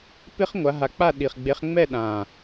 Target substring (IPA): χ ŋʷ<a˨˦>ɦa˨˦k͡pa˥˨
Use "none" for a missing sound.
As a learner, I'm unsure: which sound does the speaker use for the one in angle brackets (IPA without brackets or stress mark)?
a˨˦